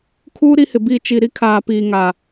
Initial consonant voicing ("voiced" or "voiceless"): voiceless